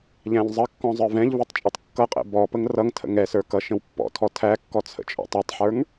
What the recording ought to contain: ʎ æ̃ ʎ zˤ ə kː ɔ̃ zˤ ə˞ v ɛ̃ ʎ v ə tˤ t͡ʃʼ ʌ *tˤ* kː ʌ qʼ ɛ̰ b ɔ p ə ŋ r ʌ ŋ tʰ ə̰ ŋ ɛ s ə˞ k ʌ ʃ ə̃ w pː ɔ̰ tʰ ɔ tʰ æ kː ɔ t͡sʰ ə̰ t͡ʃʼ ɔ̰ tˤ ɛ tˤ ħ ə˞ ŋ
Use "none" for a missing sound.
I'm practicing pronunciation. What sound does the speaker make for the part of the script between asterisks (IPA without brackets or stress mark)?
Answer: tˤ